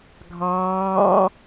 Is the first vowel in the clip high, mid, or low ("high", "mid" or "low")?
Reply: low